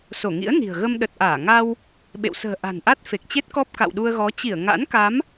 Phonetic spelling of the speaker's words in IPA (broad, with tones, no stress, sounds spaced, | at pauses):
s o˧˩ ŋ ḭ˧˥ ə̯ n i̤˨˩ ə̯ ɣ ə˧ m ɗ ə˨˩ t̚ ʔ aː˧˩ ŋ a˧ w | ɓ ḛ˧˨ w s ə̤ː˨˩ ʔ a̤˨˩ n ʔ a˦˥ t̚ f e˨˩ k̚ t͡ɕ e˦˥ t̚ k ɔ˦˥ p̚ k a̰˧˨ w ɗ u˧ ə̯ ɣ ɔ˨˦ t͡ɕ i˧˩ ə̯ ŋ a̰˧˥ n k a˨˦ m